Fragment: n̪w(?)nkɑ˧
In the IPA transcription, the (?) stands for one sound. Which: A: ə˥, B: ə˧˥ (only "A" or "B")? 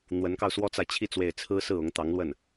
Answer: B